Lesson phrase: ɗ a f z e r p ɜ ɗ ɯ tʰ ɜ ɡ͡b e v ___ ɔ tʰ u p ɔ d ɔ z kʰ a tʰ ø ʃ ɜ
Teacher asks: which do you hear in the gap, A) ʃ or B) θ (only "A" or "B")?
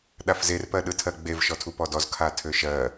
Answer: A